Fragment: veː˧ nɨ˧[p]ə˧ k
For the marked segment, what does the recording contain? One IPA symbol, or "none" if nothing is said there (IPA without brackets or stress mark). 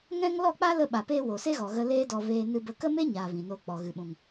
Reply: b